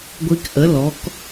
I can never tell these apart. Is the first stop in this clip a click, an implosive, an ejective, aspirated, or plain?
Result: plain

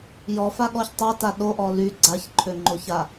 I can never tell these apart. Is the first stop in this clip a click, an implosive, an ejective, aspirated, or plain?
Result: implosive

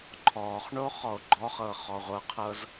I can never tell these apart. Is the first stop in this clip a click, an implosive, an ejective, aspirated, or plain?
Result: click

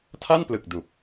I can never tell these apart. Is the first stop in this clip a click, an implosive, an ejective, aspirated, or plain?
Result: aspirated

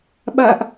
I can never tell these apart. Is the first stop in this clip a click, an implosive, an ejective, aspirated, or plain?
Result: implosive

